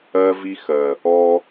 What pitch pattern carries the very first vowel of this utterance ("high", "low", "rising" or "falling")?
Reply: high